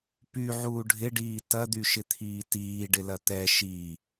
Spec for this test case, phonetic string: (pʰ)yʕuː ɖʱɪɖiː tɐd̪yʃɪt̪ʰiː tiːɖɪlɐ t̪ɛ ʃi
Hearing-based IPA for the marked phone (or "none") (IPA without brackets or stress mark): p